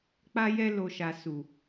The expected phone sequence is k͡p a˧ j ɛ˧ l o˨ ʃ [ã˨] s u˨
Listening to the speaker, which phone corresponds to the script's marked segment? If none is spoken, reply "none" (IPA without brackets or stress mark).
a˨